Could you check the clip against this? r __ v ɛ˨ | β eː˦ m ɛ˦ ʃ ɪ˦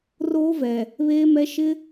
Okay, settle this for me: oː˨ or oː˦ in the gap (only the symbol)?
oː˦